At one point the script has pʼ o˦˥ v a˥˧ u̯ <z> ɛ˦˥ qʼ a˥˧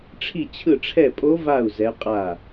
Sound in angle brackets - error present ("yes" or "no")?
no